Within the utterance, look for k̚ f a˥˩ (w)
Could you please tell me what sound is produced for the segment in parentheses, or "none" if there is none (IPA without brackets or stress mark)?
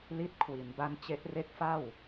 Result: w